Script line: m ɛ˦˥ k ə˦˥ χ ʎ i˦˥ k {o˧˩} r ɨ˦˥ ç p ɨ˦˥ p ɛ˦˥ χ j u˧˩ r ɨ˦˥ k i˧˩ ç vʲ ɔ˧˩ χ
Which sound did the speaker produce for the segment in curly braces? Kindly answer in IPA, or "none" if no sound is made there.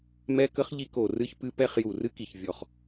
o˧˩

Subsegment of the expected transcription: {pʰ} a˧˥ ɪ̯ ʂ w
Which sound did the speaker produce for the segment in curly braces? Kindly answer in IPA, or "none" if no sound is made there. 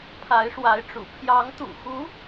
pʰ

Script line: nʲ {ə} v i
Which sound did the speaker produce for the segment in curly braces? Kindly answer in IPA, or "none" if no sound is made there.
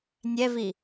ɛ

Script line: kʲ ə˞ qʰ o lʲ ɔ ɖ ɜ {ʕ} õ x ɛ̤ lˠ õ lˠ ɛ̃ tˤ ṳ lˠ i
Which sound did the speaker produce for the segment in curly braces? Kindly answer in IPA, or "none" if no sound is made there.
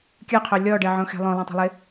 ʕ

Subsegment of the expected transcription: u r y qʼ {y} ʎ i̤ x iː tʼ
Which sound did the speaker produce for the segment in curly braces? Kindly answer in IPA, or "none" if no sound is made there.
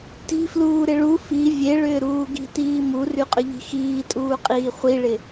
ʏ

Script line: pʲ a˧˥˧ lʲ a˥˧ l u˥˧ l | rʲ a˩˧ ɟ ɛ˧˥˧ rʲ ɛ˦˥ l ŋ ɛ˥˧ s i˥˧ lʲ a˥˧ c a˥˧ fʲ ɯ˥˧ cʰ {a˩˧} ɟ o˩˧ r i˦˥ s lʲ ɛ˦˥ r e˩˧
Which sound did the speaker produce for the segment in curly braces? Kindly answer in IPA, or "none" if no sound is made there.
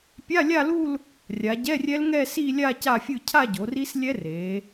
a˥˧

